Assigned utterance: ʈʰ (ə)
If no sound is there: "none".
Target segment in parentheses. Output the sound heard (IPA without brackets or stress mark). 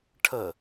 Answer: ə